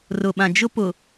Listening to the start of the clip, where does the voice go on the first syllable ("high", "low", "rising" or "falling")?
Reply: low